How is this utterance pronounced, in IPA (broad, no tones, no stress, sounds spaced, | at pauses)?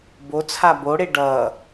b o t͡sʰ a b o ɽ e ɖ ʌː